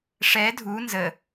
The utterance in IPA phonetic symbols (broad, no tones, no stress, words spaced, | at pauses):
ʂɛ dʱu nzə